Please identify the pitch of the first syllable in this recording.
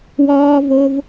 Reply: low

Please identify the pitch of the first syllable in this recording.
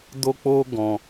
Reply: high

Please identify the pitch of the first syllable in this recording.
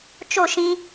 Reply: falling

